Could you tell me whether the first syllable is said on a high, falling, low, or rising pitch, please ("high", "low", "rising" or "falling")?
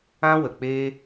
high